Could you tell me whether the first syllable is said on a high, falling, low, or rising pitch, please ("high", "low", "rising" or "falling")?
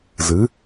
rising